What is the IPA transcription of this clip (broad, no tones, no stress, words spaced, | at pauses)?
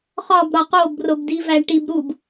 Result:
χɒb ɾɒqob robdivæʈib ɾub